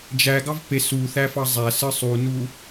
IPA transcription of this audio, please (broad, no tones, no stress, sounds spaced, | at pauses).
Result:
d͡ʒ æ ɡ ɑ v p e s u θ æ f ɑ zˤ æ s ɯ sˤ u n u